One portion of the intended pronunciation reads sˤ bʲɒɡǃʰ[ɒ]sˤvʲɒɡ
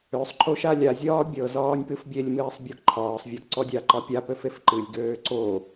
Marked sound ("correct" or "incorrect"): incorrect